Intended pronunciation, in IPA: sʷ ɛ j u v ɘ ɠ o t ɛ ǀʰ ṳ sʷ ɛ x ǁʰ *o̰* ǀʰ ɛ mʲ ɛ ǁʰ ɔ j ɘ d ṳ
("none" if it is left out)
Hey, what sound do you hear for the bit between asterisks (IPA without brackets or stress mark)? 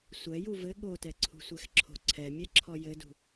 o̤